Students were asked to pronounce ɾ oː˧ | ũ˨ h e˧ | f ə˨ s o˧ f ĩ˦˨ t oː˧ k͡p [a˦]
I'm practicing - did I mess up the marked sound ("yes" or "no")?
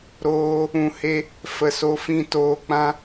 yes